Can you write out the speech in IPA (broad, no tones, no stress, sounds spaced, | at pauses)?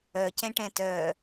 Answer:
œ c ɛ̃ ʈ ɛ̃ t œ